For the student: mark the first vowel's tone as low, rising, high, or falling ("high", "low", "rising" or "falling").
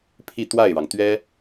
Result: falling